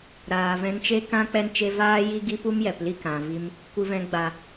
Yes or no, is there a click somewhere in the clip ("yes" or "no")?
no